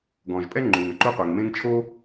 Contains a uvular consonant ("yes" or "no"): yes